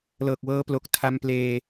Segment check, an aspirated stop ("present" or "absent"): present